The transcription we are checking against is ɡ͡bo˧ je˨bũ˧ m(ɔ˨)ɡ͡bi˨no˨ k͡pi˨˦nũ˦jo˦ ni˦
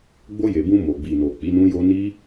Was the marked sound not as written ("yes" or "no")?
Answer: yes